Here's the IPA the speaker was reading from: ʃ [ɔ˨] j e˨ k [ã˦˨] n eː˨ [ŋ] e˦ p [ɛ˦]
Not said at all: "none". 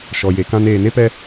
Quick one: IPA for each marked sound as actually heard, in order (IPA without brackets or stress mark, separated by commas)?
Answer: ɔ˨, ã˦, n, ɛ˦